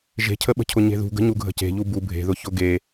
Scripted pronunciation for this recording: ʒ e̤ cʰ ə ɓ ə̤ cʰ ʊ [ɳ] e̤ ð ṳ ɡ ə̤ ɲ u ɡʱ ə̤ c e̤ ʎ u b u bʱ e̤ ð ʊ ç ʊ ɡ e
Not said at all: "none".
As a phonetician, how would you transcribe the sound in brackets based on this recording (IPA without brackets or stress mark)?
ɲ